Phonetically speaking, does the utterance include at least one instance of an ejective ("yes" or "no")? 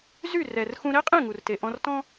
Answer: yes